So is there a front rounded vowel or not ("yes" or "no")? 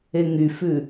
yes